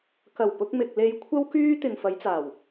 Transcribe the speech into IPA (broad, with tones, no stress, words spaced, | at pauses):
kɐ˨˩wpʊ˧k̚mɪ˨k̚ le˧jkʷʰɐ˥wkyː˥ t̪ɪ˨ŋfɐ˨˧jt͡saː˨˩w